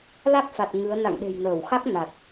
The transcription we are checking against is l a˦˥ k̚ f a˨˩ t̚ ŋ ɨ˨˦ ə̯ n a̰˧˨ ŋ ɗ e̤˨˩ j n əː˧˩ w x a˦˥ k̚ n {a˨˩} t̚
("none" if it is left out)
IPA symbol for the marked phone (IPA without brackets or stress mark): a˨˩